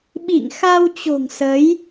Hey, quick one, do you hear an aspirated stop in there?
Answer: no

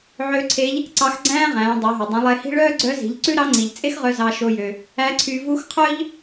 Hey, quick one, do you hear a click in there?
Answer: yes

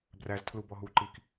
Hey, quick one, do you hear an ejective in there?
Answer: no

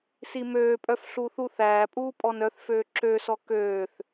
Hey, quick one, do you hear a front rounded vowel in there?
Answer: yes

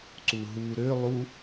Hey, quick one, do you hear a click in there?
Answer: yes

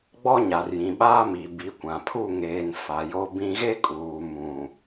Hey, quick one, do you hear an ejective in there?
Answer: yes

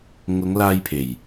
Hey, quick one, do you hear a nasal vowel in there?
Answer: no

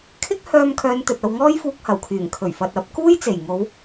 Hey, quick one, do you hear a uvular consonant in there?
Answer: no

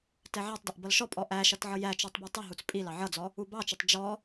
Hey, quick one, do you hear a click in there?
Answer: no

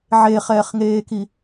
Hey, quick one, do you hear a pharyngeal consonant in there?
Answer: yes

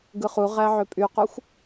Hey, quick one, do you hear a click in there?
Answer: no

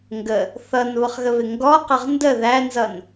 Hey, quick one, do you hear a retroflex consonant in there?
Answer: no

